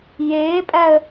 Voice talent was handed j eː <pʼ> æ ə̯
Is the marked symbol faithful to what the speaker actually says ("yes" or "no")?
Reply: yes